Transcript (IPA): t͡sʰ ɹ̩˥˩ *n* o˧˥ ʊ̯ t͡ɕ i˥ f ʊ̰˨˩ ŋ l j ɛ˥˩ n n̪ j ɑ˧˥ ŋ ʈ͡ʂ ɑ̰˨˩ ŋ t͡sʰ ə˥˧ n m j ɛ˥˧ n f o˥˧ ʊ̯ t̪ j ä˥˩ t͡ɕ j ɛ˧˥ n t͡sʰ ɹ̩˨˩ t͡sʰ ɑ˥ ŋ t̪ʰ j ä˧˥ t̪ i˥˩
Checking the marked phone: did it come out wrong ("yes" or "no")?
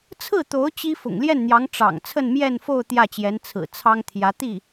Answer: yes